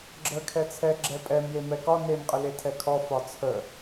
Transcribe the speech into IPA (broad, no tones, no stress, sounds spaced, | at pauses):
ɡ͡ǁ ə kʰ ɛ t͡sʰ ɛ ɡ͡ǁ ɛ pʼ ɛ m j e m ɛ k ɒ n e m qʼ ə l e tʰ ɛ kʰ ɔ f ɒ t͡sʰ ə